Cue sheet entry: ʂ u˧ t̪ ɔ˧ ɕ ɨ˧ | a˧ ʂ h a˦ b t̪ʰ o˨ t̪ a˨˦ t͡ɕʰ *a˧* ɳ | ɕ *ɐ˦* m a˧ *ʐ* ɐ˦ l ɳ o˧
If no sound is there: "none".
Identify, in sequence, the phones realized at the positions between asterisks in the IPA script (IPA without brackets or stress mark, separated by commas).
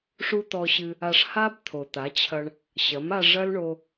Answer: ɐ˧, ɐ˨˦, ʐ